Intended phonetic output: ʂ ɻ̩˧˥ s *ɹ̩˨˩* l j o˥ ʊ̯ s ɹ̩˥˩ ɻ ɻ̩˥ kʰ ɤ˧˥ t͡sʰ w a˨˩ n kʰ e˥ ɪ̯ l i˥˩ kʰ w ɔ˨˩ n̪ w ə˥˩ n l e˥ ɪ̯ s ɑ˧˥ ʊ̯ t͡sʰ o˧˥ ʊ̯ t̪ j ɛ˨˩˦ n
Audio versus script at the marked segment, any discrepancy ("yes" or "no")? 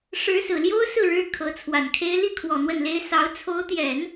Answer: no